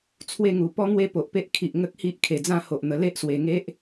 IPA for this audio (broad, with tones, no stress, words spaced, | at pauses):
t͡sʰwe˥˧ŋu˨˩ pɔ˦ŋwe˦po˨ʔpe˦ʔ kʰi˨ʔ ŋə˦k̚hi˦ʔkʰe˨˩ d͡zã˥˧ho˨ʔn̪ə˨˩ le˦ʔswe˨˩ŋe˦ʔ